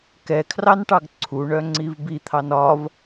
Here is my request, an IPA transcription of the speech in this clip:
k ɛ kʰ r ɑ n ʈ ɑ ɡ ǀʰ u ɳ œ ŋ͡ǀ i v b i t̪ʰ ɑ n ɒ v

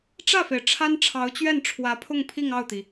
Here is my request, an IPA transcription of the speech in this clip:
ʈ͡ʂ ä˥˩ f e˩ ɪ̯ ʈ͡ʂʰ a˥ n ʈ͡ʂʰ ɑ˧˥ ʊ̯ t͡ɕ ɥ ɛ˥˩ n ʈ͡ʂʰ w ä˧˥ pʰ ʊ˥˧ ŋ pʰ i˥˧ ŋ ɑ˥˩ ʊ̯ t̪ i˩

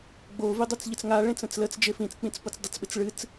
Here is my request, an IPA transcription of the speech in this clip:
ɡ͡b o v i dˤ o t͡s ʎ ə t͡s ŋ a ɭ ẽ t͡s ə̃ t͡s l ə t͡s d͡ʒ e f ĩ t͡s k͡p ĩ t͡s p o t͡s dˤ ɪ t͡s ɓ ɪ t͡s ɭ ɨ t͡s

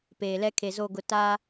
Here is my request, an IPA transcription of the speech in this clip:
p eː˨ l ɛ˦ kʰ e˨ z o˦˨ ɡ ʊ˨ t a˦

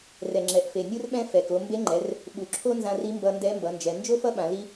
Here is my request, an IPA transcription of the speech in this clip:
r ɛ˩ ŋ͡ǁ ɛ˩ ʔ f e˩ nʲ ɯ˥ r ɓ ɛ̃˥ f ɛ˩ k o˩˧ m b e˧˥ ŋ͡ǃ ɛ˩˧ r | ɓ u˩ ǁʰ o˥ n z ã˧ r i˧˥ m b ʌ˧ n d ɛ˧˥ m b ʌ˩˧ n d͡ʒ ɛ˩˧ n d͡ʒ o˥ f ʌ˥ ɓ ã˩˧ l i˥

